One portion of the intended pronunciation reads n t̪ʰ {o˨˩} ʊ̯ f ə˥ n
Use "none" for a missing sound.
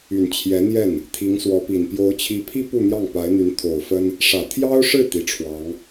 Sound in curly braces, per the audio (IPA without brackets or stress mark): o˨˩